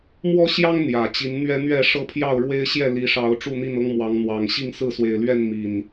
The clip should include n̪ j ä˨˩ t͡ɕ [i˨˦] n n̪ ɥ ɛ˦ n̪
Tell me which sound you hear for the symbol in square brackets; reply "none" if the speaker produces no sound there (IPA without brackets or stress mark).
i˨˦